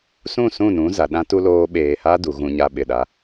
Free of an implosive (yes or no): no